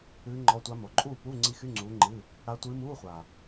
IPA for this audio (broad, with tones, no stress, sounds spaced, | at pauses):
ɨː˧˥ ŋ͡ǃ ɔ˧˥ tʷ a˧˥ m o˩˧ ǃʼ uː˥˨ p u˧˥˧ ŋ͡ǀ i˧˥ x y˧˥˧ ŋ͡ǀ uː˧˥ ŋ͡ǃ ɨ˧˥˧ | ɽ a˧˥ tʷ ɨː˧˥ m uː˧˥˧ χʷ a˨˩